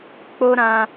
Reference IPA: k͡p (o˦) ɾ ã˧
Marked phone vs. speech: correct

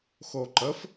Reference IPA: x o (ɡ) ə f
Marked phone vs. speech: incorrect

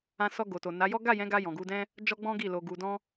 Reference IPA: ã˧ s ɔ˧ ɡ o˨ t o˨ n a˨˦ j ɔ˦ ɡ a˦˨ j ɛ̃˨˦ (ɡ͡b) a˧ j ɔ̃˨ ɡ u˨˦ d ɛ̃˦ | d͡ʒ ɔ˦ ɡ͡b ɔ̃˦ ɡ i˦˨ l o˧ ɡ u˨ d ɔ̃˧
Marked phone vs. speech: incorrect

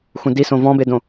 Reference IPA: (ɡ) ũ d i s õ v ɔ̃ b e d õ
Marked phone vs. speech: incorrect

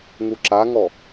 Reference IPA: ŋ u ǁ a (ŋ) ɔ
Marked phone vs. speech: correct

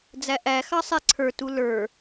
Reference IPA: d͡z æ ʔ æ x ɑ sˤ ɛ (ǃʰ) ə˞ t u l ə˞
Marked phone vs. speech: incorrect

